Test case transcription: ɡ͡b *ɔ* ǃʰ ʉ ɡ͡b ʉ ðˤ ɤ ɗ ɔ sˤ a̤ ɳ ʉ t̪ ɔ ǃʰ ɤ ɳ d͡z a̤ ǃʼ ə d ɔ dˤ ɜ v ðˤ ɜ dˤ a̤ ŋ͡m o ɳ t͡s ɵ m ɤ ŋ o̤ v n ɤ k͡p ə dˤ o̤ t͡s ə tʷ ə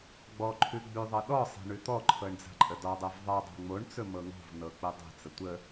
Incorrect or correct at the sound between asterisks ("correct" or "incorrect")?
correct